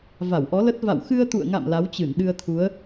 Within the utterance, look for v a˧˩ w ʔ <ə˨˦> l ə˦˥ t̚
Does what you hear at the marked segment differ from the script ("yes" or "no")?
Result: yes